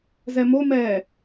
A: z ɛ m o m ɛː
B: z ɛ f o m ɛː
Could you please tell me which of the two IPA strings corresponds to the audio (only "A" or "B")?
A